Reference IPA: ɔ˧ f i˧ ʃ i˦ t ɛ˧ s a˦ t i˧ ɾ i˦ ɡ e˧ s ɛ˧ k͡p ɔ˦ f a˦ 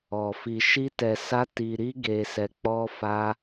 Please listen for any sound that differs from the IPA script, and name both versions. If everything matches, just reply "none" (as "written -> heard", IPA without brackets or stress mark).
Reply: none